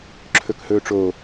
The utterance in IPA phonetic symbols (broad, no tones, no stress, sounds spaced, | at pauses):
ǁʰ ɵ k h ɵː ʈ͡ʂ oː